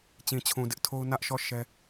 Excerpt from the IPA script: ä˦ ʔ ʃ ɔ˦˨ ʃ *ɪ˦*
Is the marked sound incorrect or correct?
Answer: incorrect